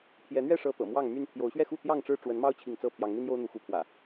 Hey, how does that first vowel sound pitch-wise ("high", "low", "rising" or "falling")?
rising